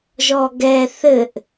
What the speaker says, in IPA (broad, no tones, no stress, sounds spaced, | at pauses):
ʒ ɔ ɡ ɛ θ ɘ ʔ